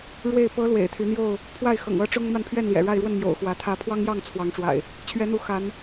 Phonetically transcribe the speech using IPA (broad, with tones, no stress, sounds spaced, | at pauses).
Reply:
ɻ w e˥˨ ɪ̯ p ɤ˨˦ l w ḛ˨˩ ɪ̯ t̪ʰ y˨˦ n̪ j o˥˨ ʊ̯ | pʰ w a˥˨ ɪ̯ x ɤ̰˨˩ ŋ ɤ˦ ʈ͡ʂ ʊ˦ ŋ m a˥˨ n pʰ ɥ ɛ˥˨ n l j ɛ̰˨˩ ɻ a˥˨ ɪ̯ ɻ w ə˥˨ n m j o̰˨˩ ʊ̯ x w ä˨˦ t̪ʰ ä˨˦ pʰ w ɑ˦ ŋ j ɑ˥˨ ŋ t͡sʰ w ɑ˨˦ ŋ ʈ͡ʂ w a̰˨˩ ɪ̯ | t͡ɕʰ ɥ ɛ˨˦ n̪ u˨˦ x a˨˦ n